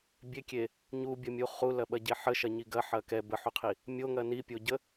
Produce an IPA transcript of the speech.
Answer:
bʲ e kʲ e | ɲ u bʲ ɐ mʲ u χ u l ɐ ɓ ɐ ɟ e ħ ə ʃ ɐ ɲ i ɡ ɐ ħ ɐ k ɛ b ə ħ u qʰ i | mʲ o ŋ ɐ n i pʲ o ɟ ə

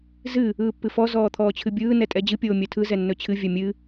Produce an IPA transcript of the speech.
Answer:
z ɨ | ɯː pː ɨ f ɔ z ɔː t̪ʰ ɔː t͡ɕʰ ɨ bʲ ɯː n ɛ tʼ ɛ d͡ʑ ɨ pʲ oː mʲ œ tʰ ɯ z ɛ nː ɵ t͡ɕʰ ɨ vʲ œ mʲ ɨ

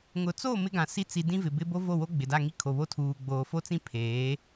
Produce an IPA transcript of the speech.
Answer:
ŋ ʊ˨ t͡s o˦˨ m ɪ˦ ɡ ã˨ s i˦ t͡s i˨ d ĩ˦ v ɪ˨ b ɪ˦ b o˦ v o˦˨ w o˦ ɡ͡b ɪ˨ d a˦˨ ŋ i˦ kʰ o˨ β o˦ tʰ uː˨ ɡ͡b oː˨ f o˦ t͡s ĩ˦ pʰ eː˨˦

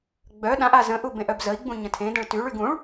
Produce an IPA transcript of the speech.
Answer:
ɡ͡b œ ɗ ã ʔ a z ə̃ ʔ u b ẽ ʔ œ b z ə i̯ ɡ͡b ũ ɲ ə̃ tʰ ẽ d ə̃ ɭ t y ɭ y ɡ ũ ɭ

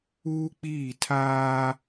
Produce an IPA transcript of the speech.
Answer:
uː˦ k͡p iː˦˨ tʰ aː˦

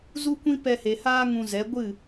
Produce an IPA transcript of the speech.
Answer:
z u˦ kʷ ĩ˦ p ɛ˧ h e˨ h aː˦ ŋ ũ˧ z ɛ˨˦ ɡʷ ɨ˦˨

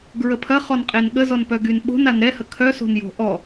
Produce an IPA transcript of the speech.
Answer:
ɡ ɹ ə pʰ ɐ χ ɔ n qʼ e n ɠ ə z ɔ n p œ ɡ y n ɓ o̤ n a n ɾ ɛ h ə kʰ œ s o̤ n j o̤ ʔ ɔ

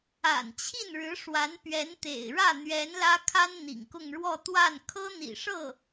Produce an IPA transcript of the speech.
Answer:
a̰˨˩ n t͡ɕʰ i˥˩ n ɻ ɻ̩˧˥ ʂ w a˧˥ n p ɥ ɛ˧˥ n t̪ ḛ˨˩ ɪ̯ ɻ ä˥˩ n̪ ɥ ɛ˧˥ n l ä˥ kʰ a˥ n n̪ ḭ˨˩ ŋ k ʊ˥˧ ŋ ɻ w ɔ˥˧ t̪ w a˥˩ n kʰ ɤ˥ n̪ ḭ˨˩ ʂ ɤ˥˩

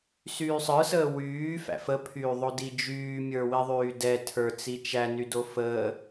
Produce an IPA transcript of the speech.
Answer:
s yː sˤ ə˞ s əː w yː f æ̰ f ə pʰ yː ðˤ o d i d͡ʒ yː mʲ ə˞ w i ðˤ yː d ɛ tʰ ə˞ t͡s i t͡ʃ æ n y d o f əː

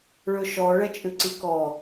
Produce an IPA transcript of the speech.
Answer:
ɭ ɵ ʃ ɔ ɭ ɛ t͡ʃʼ ʉ ǀ i k ɔ

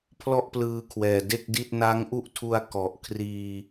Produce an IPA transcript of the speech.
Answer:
pʰ l ɔ˥˩ ʔ p l ɯː˧ kʰ w ɛː˨˩ d e˥˩ k̚ d i˥˩ t̚ n a˦˥ ŋ ʔ u˥˩ ʔ tʰ u˧ a̯ k ɔ˨˩ ʔ kʰ r iː˧

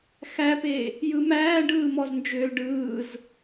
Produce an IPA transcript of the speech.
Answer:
x æ p e | j ɯ m æː ɖ ɯː m ɔ z n d͡ʒ ʏː l ɖ ɯː z

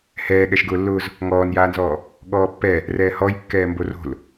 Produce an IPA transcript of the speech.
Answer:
h ɛː ɠ ɛ ʃ ɡ ʊː lː ʊː z | ŋ ɔː n j aː n z ɔː | ɠ ɔː pː ɛ | r ɛː h ɔ j kː ɛː m b o r o̤ l

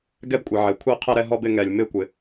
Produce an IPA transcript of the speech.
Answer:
ɡ ɛ˥˨ b kʷʼ ɛ˩ ʕ ɛ˩ kʷʰ ɛ˥˨ qʰ ɛ˥˨ ɾ ɛ˥˨ ɦ ɔ˥˨ b ɪ˥˨ ŋ ɛ˩ lʲ m ɪ˥˨ kʷ ɪ˩

